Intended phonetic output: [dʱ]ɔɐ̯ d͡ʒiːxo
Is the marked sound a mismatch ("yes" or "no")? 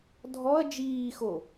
no